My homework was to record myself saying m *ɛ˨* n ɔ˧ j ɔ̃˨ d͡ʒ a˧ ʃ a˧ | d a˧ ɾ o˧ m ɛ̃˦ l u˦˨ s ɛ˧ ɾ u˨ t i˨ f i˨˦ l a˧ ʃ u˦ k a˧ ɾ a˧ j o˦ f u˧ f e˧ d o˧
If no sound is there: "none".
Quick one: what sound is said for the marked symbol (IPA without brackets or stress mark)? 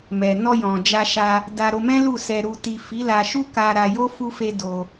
ɛ˨